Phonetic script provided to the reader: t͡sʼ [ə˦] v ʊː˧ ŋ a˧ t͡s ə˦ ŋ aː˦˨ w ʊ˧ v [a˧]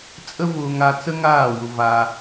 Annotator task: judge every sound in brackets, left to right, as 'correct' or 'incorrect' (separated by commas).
correct, correct